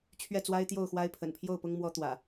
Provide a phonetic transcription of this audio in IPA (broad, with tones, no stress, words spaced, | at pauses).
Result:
t͡ɕʰɥɛ˥˨t͡swa˦ɪ̯t̪jo˥˨ʊ̯xwa˦ɪ̯ pʰə̰˨˩npʰjo˥˨ʊ̯pʊ˦ŋ mwɔ˦t̪wä̰˨˩